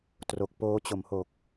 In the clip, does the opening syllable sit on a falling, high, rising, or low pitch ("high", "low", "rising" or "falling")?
low